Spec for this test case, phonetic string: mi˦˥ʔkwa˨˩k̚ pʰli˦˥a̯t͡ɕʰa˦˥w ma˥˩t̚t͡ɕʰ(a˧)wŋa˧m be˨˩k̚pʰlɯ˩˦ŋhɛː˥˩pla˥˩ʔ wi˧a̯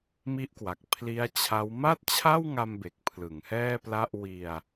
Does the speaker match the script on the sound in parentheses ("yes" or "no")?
no